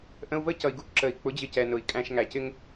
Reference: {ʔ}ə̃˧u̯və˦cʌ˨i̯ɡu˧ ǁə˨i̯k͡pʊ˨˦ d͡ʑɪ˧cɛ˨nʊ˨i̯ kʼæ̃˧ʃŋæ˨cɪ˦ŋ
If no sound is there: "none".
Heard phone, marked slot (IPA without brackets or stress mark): ʔ